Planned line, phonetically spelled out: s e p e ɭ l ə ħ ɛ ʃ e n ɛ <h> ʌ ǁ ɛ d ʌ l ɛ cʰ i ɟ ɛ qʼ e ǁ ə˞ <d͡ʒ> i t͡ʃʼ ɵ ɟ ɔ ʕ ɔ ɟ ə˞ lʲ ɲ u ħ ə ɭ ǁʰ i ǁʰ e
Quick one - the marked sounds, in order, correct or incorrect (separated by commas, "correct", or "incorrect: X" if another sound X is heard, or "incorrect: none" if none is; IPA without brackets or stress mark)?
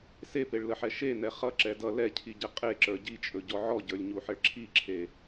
incorrect: χ, incorrect: ɟ